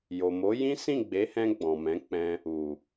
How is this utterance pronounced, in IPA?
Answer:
jo˨mo˨˦ jĩ˦ sĩ˦˨ɡ͡be˨˦hɛ̃˧ ɡ͡bɔ̃˨mɛ̃˨˦k͡pɛ̃˧ | u˨

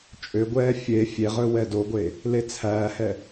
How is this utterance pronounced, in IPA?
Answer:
t͡ʃʼøɡʷɛː fʲe fʲeʁɵ wɛdoɡʷe | let͡sʰæːhɛ

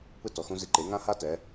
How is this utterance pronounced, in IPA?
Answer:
pɯ˥tɔ˩˥xũ˥ zi˧ǃe˩˥ ŋã˥ha˥ tɛ˩˥

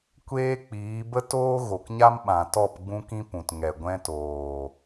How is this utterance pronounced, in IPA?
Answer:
kʷeː˦k͡piː˨˦ bə˦toː˦ ɣo˨kɲa˦mɓã˨tɔ˦˨p ɡ͡bũ˦kĩ˦pũ˨tŋɛ˨ ɡʷɛ̃˧toː˨

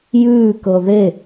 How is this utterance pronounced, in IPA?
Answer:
jʉː kɤðe

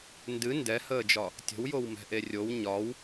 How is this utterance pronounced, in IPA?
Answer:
ndɨ ndɛhəːd͡ʒɒ | tʲə̤wjowmɛ̤ʔe rʲow ɲɒw

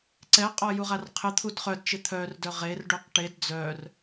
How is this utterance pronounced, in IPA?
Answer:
ǀɛqʼɔ juʁarqʰɪt̪ʰud χœdt͡ʃɪ t̪ʰœrdœ ʁerɖuq ʈed d͡zœr

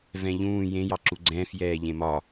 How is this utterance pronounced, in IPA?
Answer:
vɛ̃ʎũː jẽ jɑǁuɡ͡ǀɛ̃ːf jɛːʎẽmɒ

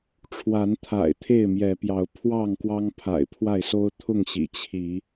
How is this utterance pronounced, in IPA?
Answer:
ʈ͡ʂʰwa˨˦nt̪ʰa̰˨˩ɪ̯ t̪ʰe˥˨ɪ̯mjɛ˨˦pjɑ˨˦ʊ̯ pʰwɑ˥˨ŋ kwɑ˦ŋpʰa̰˨˩ɪ̯pʰwa˥˨ɪ̯so˦ʊ̯ t̪ʰʊ˥˨ŋɕḭ˨˩ t͡ɕʰi˨˦

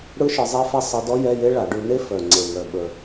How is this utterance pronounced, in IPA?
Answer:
ɽɯ˦˥ʃɯ˨˦zˤe˦˥fɛ˦˥ sˤɯ˨˦dɔ˦˥ jɛ˧˥˧je˦˥ ɭa˨˩˦ɖʉ˨˦ne˦˥ fœ˨˩ŋ͡ǀe˨˩ŋœ˨˩ ɓə˨˩

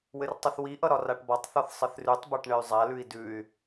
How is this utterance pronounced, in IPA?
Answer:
wɘrtˤɘθwiʔʌ ɾɒraʈbɒtˤθɒθ sˤɘθrʉtˤbaʈ ɳɘy̯zˤalʉi̯ dʉy̯

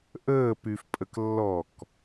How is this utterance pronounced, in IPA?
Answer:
ʔəː pyfpʼəklːɔk

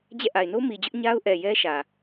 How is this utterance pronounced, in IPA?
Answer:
d͡ʑɛ̰˦˨ ʔa˨ɪ̯no˦mi˨d͡ʑʊ˦ʔ ɲa˦ʊ̯ ʔɛ˨ jɛ˦ ʃä˨

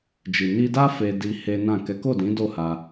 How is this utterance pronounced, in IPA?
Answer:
d͡ʒi˨ ni˧da˦ fe˧di˧ he˦nã˦˨ kɛ˨˦ko˦˨dĩ˨˦ do˦˨ha˧

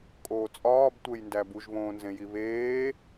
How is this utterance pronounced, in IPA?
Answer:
kʼoːt͡sʼɒːbtʷejndæ buʒβõːnzẽji βeː

